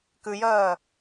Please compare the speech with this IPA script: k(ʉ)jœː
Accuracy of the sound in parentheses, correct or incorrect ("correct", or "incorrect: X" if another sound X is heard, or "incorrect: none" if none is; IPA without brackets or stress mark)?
correct